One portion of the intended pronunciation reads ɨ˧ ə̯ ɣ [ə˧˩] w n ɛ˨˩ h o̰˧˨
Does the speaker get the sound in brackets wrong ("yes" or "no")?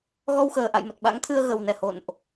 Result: yes